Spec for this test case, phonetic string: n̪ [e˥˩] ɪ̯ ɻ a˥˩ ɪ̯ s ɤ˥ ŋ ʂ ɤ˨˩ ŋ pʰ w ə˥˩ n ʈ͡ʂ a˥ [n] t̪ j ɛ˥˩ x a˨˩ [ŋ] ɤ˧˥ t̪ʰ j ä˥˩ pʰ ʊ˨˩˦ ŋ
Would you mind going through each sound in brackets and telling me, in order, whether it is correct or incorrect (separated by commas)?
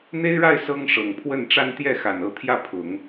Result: incorrect, correct, incorrect